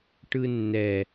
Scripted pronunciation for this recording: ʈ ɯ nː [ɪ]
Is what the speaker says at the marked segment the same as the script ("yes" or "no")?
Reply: no